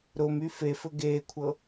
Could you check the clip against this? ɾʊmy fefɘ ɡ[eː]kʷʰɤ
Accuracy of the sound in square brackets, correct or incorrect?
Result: correct